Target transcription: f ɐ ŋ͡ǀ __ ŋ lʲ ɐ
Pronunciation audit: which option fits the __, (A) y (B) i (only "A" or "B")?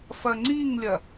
B